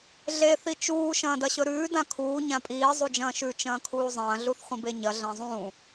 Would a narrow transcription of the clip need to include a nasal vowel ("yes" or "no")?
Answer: yes